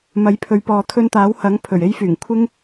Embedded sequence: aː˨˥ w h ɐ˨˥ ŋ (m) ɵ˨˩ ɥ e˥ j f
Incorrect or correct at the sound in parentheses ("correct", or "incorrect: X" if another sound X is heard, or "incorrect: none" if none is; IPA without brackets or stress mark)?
incorrect: pʰ